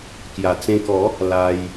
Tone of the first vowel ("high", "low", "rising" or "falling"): low